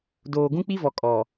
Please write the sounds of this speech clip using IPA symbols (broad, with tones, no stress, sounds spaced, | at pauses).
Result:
d oː˨ ɡ ũ˦ k͡p i˦ v ɔ˨ kʼ ɔ˨